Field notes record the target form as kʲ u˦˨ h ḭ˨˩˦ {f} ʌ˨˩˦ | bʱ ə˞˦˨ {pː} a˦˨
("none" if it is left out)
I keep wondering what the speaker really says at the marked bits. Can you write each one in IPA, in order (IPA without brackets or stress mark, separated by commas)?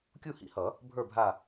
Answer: h, bʱ